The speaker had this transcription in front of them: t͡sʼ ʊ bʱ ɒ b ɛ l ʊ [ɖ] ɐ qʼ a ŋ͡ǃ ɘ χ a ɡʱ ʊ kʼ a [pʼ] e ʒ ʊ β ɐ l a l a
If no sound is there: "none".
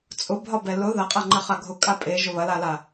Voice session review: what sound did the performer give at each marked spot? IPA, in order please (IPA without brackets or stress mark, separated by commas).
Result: ð, pʼ